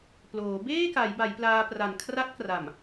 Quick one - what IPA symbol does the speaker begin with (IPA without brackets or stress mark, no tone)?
p